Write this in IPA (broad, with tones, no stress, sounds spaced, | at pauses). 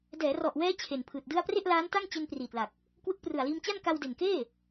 d ɛː˩˦ r ɔ˨˩ ʔ w ɛː˦˥ t͡ɕʰ e˨˩ n pʰ ɯː˨˩ t̚ d ɯ˥˩ a̯ p r e˥˩ ʔ l aː˦˥ n t a˥˩ ŋ t͡ɕ e˧ n p r iː˨˩ t̚ l a˨˩ k̚ | k w ɯ˦˥ k̚ p r ɯ˨˩ a̯ l iː˧ m t͡ɕ a˥˩ n k a˧ w d e˨˩ n k eː˥˩